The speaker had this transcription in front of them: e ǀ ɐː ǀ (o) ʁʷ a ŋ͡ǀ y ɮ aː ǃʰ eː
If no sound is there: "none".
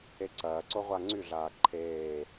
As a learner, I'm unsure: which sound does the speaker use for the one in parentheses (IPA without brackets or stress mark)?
o